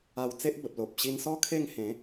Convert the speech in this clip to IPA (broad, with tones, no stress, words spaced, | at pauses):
a˧wt͡se˦ʔ bə˨p̚lo˨p̚ɕi˧nsɔ˦ kʰe˥˧ŋ hẽ˨˦